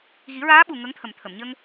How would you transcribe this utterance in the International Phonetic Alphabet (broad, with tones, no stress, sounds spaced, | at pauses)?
ɣ i˨˩˦ ɹ aː˧˥ ɓ u˨˩ ŋ ə˧˥ ŋ t̪ʰ ə˨˩ m t̪ʰ ə˨˩˨ m ɲ ə˧ ŋ